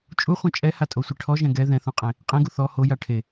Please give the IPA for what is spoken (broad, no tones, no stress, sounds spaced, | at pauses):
t͡ʃʼ u χʷ ɛ̃ t͡ʃʼ ɛ h a tʼ o sʷ e ʈʰ ɔ ʒ ɛ̃ ɡ ɛ ð ɛ̃ θ ũ qʼ ẽ | qʼ ẽ ɡ u θ ɔ h o j a ʈʰ e